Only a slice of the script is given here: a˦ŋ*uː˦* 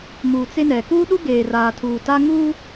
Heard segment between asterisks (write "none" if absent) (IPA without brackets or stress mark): uː˦